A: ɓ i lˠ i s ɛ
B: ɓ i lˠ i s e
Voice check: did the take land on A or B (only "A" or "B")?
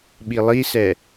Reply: A